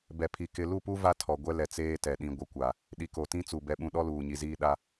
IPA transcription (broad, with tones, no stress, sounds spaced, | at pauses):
b ɛ˨ pʰ i˨ k ɪ˨ l u˦˨ p u˦ v a˦ tʰ ɔ˨ ɡʷ ɛ˦ l ɛ˨ t͡s eː˦ t ɛ˨ ɗ ĩ˨ ɡʷ ɪ˨ kʷ a˨ | ɗ i˨ k o˨ t ĩ˦ t͡s u˨ b ɛ˦ ɓ ũ˦ ɗ ɔ˦ l uː˨ ɲ i˨ z iː˦ ɗ a˦